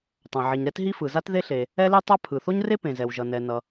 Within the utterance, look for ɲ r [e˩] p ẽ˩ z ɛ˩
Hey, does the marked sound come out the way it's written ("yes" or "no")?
no